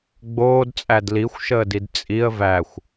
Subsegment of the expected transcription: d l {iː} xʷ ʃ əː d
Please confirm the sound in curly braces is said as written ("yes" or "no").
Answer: no